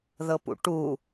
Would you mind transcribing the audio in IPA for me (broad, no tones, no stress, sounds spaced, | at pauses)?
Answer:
ð ɤ p ṵ ʈ u